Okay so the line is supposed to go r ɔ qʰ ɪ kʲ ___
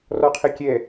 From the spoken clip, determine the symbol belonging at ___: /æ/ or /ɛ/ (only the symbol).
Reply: ɛ